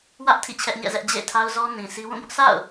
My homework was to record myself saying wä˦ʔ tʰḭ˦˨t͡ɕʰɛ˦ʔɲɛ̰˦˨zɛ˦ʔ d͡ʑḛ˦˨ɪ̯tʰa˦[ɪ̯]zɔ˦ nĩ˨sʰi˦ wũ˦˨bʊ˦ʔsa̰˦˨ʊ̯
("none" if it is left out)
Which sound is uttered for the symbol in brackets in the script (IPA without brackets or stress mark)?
ʊ̯